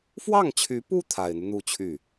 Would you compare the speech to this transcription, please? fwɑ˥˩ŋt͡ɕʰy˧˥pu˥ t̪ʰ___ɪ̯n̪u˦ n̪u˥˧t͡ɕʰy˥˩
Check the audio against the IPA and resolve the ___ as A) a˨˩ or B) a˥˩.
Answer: A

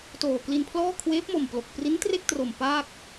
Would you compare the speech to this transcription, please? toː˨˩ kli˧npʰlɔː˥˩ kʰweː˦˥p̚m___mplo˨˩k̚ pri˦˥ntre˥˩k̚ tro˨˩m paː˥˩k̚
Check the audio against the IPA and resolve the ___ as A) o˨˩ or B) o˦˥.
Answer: A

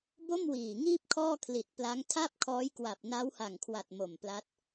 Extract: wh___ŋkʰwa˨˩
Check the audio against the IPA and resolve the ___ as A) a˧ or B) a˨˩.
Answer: B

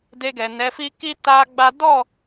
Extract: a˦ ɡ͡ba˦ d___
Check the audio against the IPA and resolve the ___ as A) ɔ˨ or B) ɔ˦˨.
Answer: B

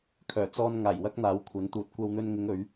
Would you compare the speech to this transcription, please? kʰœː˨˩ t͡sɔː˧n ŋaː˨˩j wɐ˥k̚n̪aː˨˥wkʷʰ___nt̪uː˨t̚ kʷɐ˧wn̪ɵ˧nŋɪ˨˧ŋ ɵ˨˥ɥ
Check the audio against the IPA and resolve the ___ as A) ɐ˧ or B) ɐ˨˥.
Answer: B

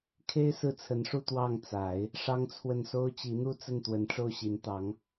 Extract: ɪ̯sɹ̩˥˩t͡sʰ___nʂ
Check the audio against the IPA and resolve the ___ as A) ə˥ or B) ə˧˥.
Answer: B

